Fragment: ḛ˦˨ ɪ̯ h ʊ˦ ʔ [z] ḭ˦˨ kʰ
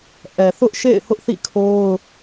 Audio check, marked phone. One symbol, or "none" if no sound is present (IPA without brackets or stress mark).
θ